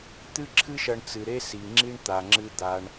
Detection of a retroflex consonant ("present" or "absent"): present